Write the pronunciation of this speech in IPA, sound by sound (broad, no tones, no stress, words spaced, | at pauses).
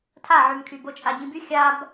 tʰaʕymkʰy bot͡ʃʼaɟĩby xʲab